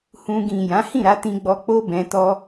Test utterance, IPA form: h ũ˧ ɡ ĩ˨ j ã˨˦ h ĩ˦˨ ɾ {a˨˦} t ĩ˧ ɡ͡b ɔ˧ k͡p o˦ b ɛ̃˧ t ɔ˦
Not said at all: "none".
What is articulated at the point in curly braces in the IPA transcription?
a˨˦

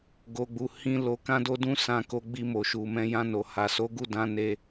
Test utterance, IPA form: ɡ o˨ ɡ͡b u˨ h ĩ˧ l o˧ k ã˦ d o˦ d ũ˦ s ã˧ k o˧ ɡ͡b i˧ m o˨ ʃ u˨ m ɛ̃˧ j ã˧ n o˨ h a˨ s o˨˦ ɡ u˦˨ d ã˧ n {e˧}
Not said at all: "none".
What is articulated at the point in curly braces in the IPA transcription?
e˧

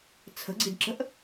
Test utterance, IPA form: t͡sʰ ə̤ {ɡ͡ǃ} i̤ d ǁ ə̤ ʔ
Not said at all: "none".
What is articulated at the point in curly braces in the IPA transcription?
ɡ͡ǀ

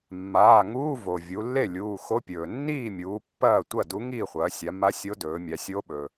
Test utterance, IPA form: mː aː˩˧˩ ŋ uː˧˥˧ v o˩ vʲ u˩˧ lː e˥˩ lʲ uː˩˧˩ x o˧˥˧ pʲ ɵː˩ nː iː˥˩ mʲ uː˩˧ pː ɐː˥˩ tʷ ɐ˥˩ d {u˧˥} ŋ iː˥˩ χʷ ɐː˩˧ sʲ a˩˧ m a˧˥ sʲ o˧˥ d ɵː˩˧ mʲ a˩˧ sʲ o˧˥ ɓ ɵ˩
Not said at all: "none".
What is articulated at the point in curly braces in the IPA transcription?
u˧˥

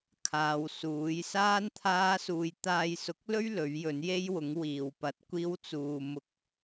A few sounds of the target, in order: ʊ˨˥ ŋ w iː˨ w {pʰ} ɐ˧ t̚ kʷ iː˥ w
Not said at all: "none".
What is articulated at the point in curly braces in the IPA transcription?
p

